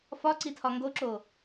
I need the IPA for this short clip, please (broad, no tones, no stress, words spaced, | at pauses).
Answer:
fɒǀitʰɒ ŋɡoǁo